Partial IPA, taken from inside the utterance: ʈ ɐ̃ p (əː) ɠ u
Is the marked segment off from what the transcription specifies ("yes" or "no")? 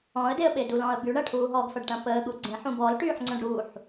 no